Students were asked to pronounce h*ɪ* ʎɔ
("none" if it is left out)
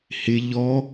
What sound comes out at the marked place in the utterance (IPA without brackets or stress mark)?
ɪ